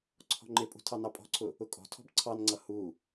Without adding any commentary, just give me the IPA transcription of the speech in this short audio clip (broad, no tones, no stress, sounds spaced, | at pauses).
ǀʰ ɔ̤ ŋ͡ǃ ɪ pʼ ṳ tʰ ɑ n ɑ pʼ ɔ̤ ǀʰ ʊ | ʊ kʼ ɔ̤ tʰ ɔ̤ b ǀʰ ɑ n ŋ͡ǀ ʌ h u